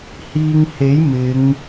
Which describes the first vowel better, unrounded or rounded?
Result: unrounded